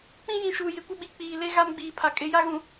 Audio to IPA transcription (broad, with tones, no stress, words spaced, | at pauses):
k͡pĩ˦jĩ˨ ʃuː˨jɪ˨kʷɪ˦ɓi˨ k͡piː˨le˦ ɣa˦mɡ͡biː˨pʰa˨ kʼɪ˨˦ja˦ ɣũ˨